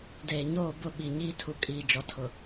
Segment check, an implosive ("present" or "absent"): present